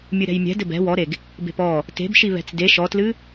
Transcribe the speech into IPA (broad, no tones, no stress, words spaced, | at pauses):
mʲɨɾɛ̤jmʲɛ̤ dɘbɛ̤ wɔɾeɡ | be̤pɔ | te̤bʃi βɛ̤t͡sde ʃɔtlɨ